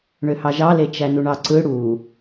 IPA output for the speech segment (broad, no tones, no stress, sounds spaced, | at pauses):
ɳ ø h ɑ ʒ ɑ l e t͡ʃ æ n u ɳ ɑ ǀ ɯ ɽ u